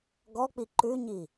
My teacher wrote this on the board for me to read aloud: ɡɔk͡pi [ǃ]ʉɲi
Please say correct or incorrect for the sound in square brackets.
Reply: correct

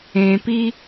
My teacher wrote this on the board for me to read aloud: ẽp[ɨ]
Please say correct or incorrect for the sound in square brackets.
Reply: incorrect: i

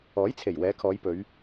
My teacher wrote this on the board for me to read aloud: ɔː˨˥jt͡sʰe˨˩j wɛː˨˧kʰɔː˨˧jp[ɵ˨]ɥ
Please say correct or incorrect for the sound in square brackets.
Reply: incorrect: ɵ˨˧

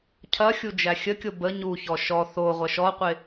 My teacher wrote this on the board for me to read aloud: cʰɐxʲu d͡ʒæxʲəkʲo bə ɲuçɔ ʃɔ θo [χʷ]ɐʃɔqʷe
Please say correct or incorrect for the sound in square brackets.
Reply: incorrect: ʁʷ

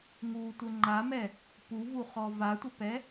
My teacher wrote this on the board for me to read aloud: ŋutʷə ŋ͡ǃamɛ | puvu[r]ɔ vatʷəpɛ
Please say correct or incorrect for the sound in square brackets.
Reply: incorrect: χ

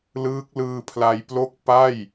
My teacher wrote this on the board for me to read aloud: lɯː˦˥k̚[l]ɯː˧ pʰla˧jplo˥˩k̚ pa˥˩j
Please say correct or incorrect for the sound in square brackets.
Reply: correct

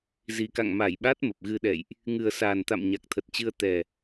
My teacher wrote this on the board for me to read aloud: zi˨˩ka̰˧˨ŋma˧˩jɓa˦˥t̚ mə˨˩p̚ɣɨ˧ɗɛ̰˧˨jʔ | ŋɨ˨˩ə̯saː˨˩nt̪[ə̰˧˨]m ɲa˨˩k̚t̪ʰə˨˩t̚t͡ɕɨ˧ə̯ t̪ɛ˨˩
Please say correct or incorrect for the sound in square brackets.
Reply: incorrect: a̰˧˨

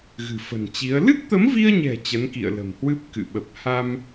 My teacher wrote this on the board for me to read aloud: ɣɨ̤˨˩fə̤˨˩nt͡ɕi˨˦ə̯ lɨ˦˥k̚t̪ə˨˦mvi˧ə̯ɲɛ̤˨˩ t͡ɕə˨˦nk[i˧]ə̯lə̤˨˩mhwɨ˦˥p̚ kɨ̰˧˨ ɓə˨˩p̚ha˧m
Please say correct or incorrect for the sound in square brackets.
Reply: incorrect: ḭ˧˨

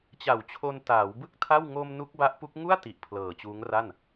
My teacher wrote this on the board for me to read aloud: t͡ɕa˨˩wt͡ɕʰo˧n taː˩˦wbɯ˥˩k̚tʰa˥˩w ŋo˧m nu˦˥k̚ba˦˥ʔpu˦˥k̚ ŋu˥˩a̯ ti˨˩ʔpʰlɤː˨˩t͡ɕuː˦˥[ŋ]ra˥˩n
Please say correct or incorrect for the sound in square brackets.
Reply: correct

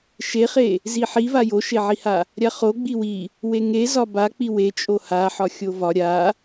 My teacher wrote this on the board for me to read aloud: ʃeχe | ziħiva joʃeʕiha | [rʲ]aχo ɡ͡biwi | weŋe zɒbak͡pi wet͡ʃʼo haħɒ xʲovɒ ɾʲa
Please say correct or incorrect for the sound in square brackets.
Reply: incorrect: ɾʲ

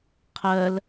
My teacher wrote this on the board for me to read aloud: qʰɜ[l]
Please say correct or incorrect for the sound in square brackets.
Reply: correct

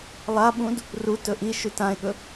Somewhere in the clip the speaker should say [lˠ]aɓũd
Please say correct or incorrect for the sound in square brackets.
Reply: correct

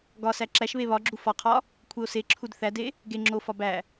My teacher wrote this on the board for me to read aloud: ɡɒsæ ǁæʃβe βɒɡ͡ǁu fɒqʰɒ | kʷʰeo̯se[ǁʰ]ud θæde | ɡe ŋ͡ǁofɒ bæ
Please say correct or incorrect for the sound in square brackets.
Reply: correct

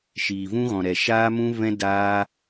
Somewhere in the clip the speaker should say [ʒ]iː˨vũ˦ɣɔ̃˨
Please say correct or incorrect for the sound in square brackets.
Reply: incorrect: ʃ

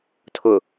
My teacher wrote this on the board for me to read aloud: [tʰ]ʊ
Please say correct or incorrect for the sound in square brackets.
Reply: correct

